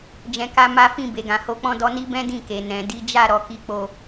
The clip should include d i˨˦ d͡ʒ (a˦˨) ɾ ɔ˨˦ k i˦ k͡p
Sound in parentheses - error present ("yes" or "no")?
no